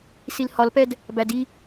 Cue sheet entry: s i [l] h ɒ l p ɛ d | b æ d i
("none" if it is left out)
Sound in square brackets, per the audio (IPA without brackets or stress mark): l